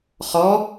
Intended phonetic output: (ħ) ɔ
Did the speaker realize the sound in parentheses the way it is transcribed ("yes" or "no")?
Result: no